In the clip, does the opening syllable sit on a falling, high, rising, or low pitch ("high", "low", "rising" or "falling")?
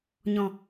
low